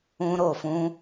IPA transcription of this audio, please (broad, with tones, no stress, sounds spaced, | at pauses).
ũ˧ ɾ o˨ f ũ˧